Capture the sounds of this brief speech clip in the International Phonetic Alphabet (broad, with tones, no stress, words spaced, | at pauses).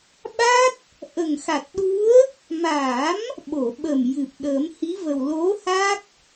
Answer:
ɓa˦˥t̚ | ʔə˨˩ŋxa˨˩t̚ɗu˧˥ə̯ | ma˨˩˦m | ɓo˨˩˨ɓə˨˩m jɨ˨˩p̚ɗə˨˩˦mhi˧˥və˨˩w lo˧˥ha˦˥k̚